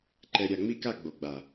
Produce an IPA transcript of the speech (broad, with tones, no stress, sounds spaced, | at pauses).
ǃ ɛ˨ ɾʲ a˨ ŋ͡m i˦ k a˦˨ ɡ͡b o˨ ɡ͡b a˨